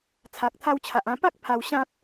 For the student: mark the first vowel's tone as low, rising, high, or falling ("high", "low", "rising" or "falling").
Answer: low